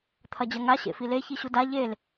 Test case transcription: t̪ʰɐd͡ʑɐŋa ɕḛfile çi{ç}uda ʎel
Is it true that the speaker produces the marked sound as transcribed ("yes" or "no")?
no